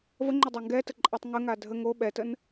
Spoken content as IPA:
vəŋ͡ǃʊdˤa ŋɡɛtəǃʼatˤ ŋəŋa dʱə ŋo ɓɛtən

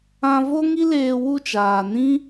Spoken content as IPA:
ã˧vo˦ŋi˦leː˧ wu˦˨t͡ʃaː˨nĩ˦

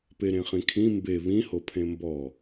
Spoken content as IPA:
peɾẽχĩkʰĩ mbe βĩho pʰẽmbɔ

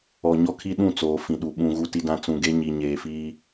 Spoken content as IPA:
ɔ˨ɲɔ˦kʰi˦ɗũ˦˨ t͡soː˨fĩ˨ɗu˨ ɓũ˨ ɣu˨ti˨dã˨ t͡sũ˨ɡe˦ ɲi˨ ɲeː˨fiː˦

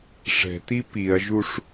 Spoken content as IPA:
ʂɛ̤ti piɐ̯ʒuʂ

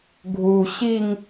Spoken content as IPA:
ɡʱu ɕiŋ

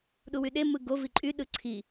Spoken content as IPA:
ɗuwyɗe mɯɡo viǃʼy ɗɯǀʰi

